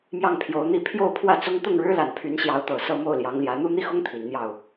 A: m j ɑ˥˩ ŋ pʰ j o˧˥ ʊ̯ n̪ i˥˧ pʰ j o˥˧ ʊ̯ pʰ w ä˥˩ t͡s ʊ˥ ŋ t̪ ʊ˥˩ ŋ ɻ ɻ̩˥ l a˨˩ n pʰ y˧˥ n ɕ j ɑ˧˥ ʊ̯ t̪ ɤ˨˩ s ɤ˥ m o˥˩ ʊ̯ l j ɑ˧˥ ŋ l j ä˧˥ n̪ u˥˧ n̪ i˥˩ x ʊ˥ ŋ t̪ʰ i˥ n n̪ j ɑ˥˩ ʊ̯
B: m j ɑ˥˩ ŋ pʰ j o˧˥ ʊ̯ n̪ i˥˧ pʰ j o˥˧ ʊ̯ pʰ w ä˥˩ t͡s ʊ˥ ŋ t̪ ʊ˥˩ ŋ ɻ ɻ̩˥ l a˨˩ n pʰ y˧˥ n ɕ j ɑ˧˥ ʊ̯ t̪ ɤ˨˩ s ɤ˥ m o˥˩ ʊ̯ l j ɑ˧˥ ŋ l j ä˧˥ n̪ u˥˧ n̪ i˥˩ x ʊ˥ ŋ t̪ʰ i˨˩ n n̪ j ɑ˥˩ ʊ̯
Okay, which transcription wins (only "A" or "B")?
B